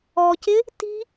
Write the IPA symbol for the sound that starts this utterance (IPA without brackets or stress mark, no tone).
ɔ